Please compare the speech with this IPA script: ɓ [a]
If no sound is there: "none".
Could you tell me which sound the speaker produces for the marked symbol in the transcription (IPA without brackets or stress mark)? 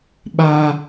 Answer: a